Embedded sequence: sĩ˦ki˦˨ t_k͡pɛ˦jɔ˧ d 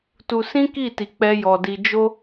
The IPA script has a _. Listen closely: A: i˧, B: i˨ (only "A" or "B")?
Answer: A